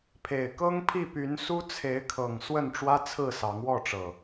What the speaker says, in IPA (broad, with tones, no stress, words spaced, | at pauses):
pʰe˨˩ɪ̯kɤ˦ŋ pʰi˥˨py˨˦nsu˦ t͡sʰe˨˦ɪ̯kʰɤ˨˩ŋ swə˥˨nʈ͡ʂwä˦ t͡sʰɹ̩˥˨sɑ˨˦ŋwɔ˥˨ʈ͡ʂɤ˨˩